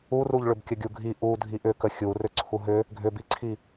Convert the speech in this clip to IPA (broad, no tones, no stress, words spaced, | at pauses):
uruʎɭʏbkʲə ɡʲuɡʱi ʔu dʱiʔʏkə xʲu rʏǀʰuɦʏ | ɡʱʏbiǀʰi